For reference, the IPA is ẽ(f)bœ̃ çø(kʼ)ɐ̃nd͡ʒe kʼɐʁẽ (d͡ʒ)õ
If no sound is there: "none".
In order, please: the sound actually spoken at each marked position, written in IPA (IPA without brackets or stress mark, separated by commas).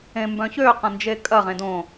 m, q, d